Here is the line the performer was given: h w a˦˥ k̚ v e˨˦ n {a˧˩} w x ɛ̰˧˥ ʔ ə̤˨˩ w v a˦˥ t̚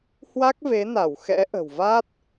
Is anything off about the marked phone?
no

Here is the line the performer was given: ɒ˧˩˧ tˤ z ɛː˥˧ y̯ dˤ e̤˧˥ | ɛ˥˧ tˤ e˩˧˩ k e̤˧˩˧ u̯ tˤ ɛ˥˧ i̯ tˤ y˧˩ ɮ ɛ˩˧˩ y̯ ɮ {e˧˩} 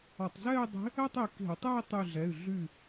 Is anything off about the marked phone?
yes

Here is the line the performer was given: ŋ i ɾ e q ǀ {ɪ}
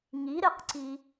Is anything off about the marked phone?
yes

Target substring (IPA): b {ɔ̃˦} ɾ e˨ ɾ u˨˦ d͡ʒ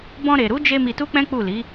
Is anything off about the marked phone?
yes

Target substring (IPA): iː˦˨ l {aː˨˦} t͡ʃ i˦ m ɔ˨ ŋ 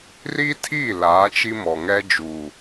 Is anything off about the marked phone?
no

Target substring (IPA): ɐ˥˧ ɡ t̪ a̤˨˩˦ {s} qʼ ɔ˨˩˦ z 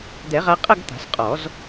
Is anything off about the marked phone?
no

